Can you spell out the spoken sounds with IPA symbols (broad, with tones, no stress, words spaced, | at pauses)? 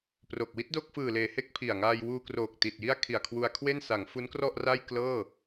pro˨˩k̚ wi˦˥t̚do˥˩k̚fɯː˨˩leː˩˦ he˦˥k̚pʰi˨˩a̯ ŋaː˧jwuː˧kroː˨˩k̚ ti˨˩t̚ji˥˩a̯ kʰi˨˩a̯kʰwu˧a̯kʰwe˥˩n sa˩˦ŋ fu˦˥nkrɔ˥˩ʔra˥˩j klɤː˥˩